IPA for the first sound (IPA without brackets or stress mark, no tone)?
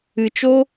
ɨ